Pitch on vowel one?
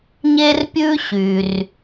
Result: high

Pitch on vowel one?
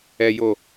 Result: low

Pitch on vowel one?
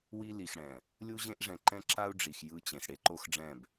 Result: high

